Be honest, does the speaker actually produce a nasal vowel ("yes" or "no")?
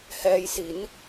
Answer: no